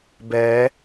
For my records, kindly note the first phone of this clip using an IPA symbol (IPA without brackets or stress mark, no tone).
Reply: b